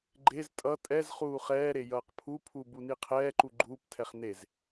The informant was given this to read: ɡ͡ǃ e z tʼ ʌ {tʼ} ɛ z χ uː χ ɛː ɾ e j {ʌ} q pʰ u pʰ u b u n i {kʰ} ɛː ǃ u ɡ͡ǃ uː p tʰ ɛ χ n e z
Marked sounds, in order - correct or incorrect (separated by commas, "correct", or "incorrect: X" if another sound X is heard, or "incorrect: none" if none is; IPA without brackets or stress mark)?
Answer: correct, incorrect: ʌː, incorrect: qʰ